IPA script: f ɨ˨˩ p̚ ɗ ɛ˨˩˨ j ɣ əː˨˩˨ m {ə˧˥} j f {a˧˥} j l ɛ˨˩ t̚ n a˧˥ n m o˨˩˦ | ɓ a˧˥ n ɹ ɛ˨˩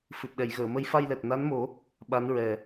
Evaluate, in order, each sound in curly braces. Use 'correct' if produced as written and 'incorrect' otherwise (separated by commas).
correct, incorrect